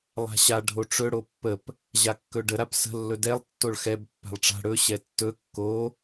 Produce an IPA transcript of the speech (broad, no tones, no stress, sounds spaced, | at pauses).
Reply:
lˠ a̤ ɕ a ɖʱ o ʈ͡ʂ ɵ ɽ o pː ə p | ʑ a kː ɵ ɖ ə ɾ a p s ə̤ lː ɵ d ɛ lˠ tː o ɭ x ɛ b pː a̤ lˠ ʈ͡ʂ a̤ ɽ ɵ ɕ ɛ tː ɵ kː o